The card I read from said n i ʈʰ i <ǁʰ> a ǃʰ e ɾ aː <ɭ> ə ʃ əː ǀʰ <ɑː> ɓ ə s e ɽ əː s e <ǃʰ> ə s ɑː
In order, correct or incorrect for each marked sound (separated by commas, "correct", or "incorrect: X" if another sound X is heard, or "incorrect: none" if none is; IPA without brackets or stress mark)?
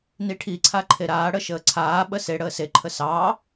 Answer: incorrect: ǀʰ, incorrect: ɽ, incorrect: aː, correct